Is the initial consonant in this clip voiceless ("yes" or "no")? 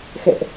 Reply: yes